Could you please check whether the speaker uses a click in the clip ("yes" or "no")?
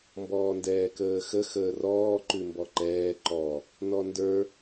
yes